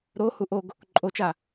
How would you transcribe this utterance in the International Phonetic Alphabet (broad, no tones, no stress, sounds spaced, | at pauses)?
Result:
ɾ o h u ʔ o ɡ | ǃʼ o t͡ʃ a